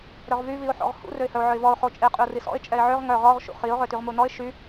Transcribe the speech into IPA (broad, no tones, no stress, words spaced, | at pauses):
ɾœʁvy viʊ̯ħɔ̰ʁhṵ røɪ̯hœʊ̯ʕœɪ̯vɔʊ̯ χot͡ʃʼe qʼyʊ̯risɔ̰ɪ̯ t͡ʃʼɛɪ̯ʕøʁ ŋœ ʁɔʁ ʃṵχiʊ̯ ʁøtyʁmunɔɪ̯ ʃy